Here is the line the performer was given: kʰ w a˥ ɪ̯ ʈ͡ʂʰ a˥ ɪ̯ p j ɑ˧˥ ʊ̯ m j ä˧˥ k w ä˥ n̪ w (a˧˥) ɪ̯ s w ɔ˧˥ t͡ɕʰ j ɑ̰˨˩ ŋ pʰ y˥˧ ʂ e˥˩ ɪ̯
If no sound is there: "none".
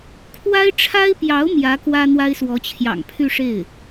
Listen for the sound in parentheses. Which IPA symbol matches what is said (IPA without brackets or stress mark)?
a˥